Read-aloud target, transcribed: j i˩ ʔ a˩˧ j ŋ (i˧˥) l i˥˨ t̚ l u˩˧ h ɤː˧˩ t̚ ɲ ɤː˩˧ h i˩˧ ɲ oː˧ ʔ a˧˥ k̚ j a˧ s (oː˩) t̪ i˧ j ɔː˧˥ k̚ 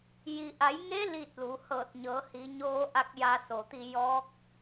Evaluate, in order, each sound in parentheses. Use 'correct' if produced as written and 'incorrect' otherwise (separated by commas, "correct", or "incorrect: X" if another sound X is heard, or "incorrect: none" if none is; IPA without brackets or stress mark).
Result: incorrect: e˧˥, incorrect: o˩